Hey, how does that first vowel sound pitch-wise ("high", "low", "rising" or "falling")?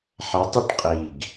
rising